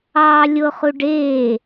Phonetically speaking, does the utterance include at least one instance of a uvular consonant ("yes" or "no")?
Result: yes